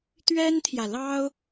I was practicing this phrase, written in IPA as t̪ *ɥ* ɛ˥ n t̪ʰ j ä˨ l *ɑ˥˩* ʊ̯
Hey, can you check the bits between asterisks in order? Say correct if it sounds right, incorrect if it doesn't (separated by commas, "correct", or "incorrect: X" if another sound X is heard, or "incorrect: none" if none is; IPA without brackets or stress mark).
correct, incorrect: ɑ˥